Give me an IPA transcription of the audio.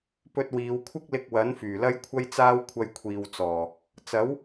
p ɵ˧ t̚ w iː˨˧ w kʷʰ ɪ˥ k̚ l ɪ˧ k̚ w ɐ˨˥ n f yː˨˩ l ɐ˥ j kʷʰ ɐ˥ j t͡s aː˥ w kʷʰ ɐ˧ j kʷʰ iː˨ w t͡s ɔː˨˩ | t͡s ɐ˨˥ w

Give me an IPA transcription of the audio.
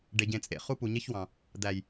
ɖ e˨ ɟ ẽ˨ t͡sʼ ḛ˨ χ u˦ p u˨ ɲ e˦ ç w ɑ̃˨ | d̪ æ˨ j

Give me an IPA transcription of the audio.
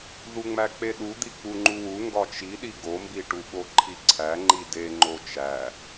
ð u ŋ͡m æ k͡p e ɗ u d̪ i k͡p u ŋ͡ǃ u w u ŋ ɡ ɒ t͡ʃ i ɗ i ɡ o m b i ʈ u ɓ o ǃʰ i ǀʰ æ ŋ͡ǃ i d e ŋ͡ǃ o t͡ʃ æ

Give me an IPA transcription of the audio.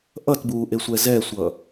ʔ ʌ t b uː ʔ e sʷ ɛ z ɛ sʷ ʌ

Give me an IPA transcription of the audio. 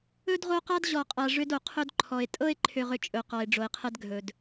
ɵ˥ d ʁ o˦ q a˥ d ʑ ɔ˨ qʼ a˨ ʐ ʏ˦ d o˩ qʰ ɵ˦ d ǃʰ ɔ˨ e̯ tʼ ɤ˥ e̯ ǃʰ ʏ˨ ʁ ʏ˨ t͡ʃʼ ɵ˩ q ɔ˩ e̯ ɖ͡ʐ o˩ e̯ qʰ ɛ˦ d ɡʱ ɵ˩ d

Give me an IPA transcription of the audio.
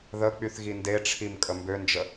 ð ə k͡p y θ ɣ i n d e ʈ͡ʂʰ i m kʼ ə m b ø n d͡ʒ ə

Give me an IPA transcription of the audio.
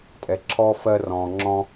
tʼ ɛ˨ ǁʰ ɔː˦ f ɜ˧ r ɔ̃ː˨ ŋ͡ǁ ɔ̃˦

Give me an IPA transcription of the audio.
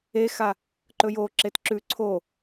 e x a | ǃ ɵ j o ǁ e t ǁ ʉ ǀʰ o

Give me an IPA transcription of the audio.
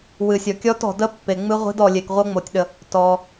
w ɨ˨ sʲ ɔ˨ kʲ ɔ˦˥ t ɔ̤˨ d ə˦˥ pː e˨ ŋ͡m ɨ˦˥ ʁʷ i̤˦˥ d ɔ˨ lʲ e˨ k ʁʷ ɤ˦˥ ŋ͡m o˨ tʲ ɗ ə˨ | t ɔ˨

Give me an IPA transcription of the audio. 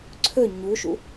ǀʰ ɵ ɲ u ʃ ṵ

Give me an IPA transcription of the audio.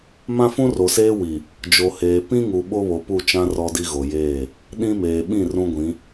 m ã˦ f ũ˦ r o˨ s eː˦ w i˨ | d͡ʒ o˨ h eː˨ p ĩ˦ ŋ u˨ ɓ o˦ β o˨ p u˦˨ t͡ʃ ã˦ r ɔ˦ d i˦ ɣ o˨ j eː˦˨ | ɗ ĩ˦ m eː˨ ɓ ĩ˦˨ r ũ˦ ɡʷ ĩ˨˦

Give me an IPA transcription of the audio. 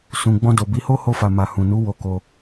s ũ˨ ɡ͡b ɔ̃˧ d o˨ b i˨˦ h o˦ h o˧ f a˨ m a˨ h ũ˨ n u˨˦ w o˧ k o˧

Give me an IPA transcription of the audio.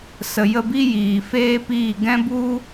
s ə˨ j ə˦˨ b i˦ j iː˨ f eː˦ p iː˦˨ ɡ ɛ̃˧ b u˧

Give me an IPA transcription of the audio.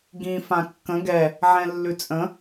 ɡ ĩ f ã kː ə̃ ɡ ɛ | ʕ ɛ̃ lː ʉ t͡sʼ ə̃

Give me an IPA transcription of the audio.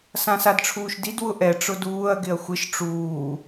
s ã s a d ʈ͡ʂʰ uː ʃ d i d w ʊ ʔ ɛ ʈ͡ʂ ʊ d uː ɐ̯ ɡ ɪ ɐ̯ xʷ ɪ ʃ ʈ͡ʂ uː

